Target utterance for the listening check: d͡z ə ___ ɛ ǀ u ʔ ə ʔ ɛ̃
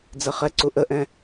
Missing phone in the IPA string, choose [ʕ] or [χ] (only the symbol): χ